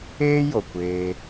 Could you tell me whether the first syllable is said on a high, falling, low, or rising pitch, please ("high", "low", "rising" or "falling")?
high